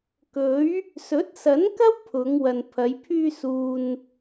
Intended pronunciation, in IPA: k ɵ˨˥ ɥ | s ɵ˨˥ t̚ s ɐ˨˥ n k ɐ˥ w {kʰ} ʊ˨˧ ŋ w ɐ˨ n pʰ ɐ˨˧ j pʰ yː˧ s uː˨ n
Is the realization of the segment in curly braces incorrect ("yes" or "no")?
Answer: yes